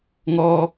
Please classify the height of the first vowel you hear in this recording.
mid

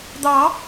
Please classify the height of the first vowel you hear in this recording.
low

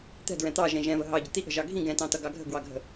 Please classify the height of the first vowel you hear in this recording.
mid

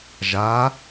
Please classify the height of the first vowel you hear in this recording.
low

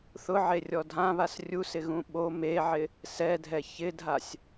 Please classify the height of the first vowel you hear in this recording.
high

